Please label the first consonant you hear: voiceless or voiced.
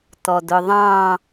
voiceless